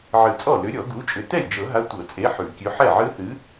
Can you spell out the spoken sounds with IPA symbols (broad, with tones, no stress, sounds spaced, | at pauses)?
ʕ ɨ˨˩˦ t͡sʼ ɔ˥˩ l ʏ˨˥ ɾʲ ɔ˨˩˦ ɡ u˨˥ t͡ʃʼ ʏ˨˩˦ t ɛ˥˩ lʲ d͡ʒ ɤ˨˩˦ ɦ a˨˥ tʷ ɤ˨˩˦ t͡sʼ e˨˥ ħ ʉ˨˩˦ kʲ ʉ˨˥ ħ ɛ˥˩ ʕ ɨ˦˥ θ ɨ˨˥